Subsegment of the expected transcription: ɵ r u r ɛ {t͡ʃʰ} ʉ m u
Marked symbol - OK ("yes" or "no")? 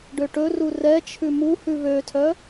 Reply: yes